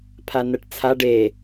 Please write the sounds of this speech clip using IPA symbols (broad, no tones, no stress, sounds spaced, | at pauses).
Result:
pʰ a n ɜ ʈ t͡sʰ a ɖ e